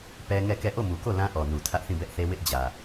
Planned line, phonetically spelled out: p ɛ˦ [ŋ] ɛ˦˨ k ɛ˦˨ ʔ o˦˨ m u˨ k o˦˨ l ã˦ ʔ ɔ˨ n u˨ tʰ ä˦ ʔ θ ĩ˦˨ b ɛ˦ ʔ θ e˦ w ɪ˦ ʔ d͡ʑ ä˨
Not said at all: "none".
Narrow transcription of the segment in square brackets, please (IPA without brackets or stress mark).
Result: ŋ